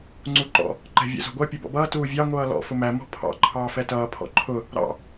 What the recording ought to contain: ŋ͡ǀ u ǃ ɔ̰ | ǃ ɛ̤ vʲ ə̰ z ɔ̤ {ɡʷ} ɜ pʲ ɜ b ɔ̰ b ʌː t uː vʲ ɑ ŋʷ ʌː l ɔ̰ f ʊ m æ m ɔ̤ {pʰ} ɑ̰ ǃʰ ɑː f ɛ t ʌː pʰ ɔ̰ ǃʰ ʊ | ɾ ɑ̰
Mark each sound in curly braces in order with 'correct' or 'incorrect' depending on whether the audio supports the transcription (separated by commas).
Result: correct, correct